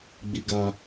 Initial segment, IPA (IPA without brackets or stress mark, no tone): ɡ͡b